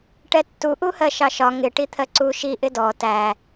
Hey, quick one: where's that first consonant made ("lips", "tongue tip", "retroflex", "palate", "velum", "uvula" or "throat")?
retroflex